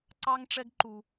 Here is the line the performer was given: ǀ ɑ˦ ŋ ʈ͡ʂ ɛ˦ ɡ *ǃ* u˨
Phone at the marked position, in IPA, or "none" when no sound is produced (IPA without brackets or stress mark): ǃ